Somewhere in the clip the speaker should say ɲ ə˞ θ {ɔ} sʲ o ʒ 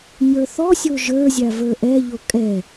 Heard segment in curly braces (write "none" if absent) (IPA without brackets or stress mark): ɔ